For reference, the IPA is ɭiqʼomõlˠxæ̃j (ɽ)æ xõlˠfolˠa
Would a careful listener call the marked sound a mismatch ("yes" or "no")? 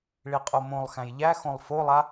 yes